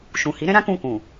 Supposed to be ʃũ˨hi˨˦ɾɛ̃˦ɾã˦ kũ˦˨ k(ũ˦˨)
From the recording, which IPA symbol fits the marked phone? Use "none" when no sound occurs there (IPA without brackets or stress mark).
ũ˨